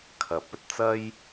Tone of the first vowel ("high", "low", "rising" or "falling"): rising